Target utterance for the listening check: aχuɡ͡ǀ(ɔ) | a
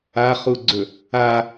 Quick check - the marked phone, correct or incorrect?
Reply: incorrect